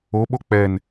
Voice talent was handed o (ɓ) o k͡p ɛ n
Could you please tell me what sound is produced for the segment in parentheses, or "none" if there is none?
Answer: ɓ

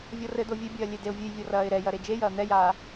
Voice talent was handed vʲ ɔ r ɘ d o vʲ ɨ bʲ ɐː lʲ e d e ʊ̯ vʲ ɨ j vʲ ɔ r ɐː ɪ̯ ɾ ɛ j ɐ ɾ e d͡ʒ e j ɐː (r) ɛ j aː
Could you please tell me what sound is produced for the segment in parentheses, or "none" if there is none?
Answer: n̪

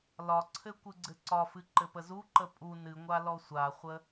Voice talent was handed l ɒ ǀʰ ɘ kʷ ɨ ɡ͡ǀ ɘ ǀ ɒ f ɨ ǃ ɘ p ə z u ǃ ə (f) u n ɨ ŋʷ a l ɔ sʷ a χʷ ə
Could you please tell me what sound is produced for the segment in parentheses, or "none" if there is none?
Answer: pʼ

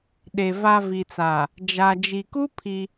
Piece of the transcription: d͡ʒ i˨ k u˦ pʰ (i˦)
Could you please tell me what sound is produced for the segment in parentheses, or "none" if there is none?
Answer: i˦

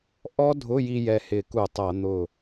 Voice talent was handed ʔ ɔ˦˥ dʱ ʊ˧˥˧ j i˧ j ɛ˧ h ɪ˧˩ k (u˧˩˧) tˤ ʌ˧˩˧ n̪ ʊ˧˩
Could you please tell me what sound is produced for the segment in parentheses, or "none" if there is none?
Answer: u˧˩˧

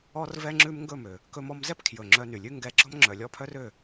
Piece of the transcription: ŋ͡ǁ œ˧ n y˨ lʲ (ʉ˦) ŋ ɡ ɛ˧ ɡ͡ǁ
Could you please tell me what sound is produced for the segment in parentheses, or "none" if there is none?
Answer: ʉ˦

